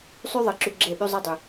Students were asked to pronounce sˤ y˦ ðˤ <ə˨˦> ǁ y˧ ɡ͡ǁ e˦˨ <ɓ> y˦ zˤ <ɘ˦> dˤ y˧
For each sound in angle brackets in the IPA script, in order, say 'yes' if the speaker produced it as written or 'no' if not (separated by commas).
yes, yes, no